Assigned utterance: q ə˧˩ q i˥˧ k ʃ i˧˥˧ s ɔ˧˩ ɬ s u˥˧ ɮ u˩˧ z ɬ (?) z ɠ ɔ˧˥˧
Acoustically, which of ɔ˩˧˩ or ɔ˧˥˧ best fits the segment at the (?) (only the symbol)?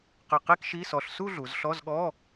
ɔ˧˥˧